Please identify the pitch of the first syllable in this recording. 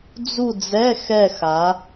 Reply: falling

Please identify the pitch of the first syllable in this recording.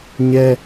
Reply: high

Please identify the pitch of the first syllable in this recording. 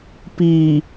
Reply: low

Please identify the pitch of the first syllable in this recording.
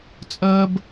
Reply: high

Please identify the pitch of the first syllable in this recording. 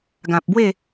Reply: low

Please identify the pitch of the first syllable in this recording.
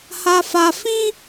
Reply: high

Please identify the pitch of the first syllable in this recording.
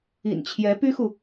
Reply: low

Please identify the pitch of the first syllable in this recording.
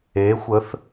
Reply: rising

